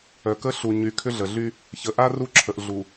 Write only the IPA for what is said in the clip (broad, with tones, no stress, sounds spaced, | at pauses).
œ˨ k ə˦ ɬ u˨ ɲ y˨ kʰ ʏ˦ ɮ ə˨ ɮ y˦ | ç ə˨ ʔ a˦ r u˦˨ ǁʰ ə˨ ʔ ɮ u˨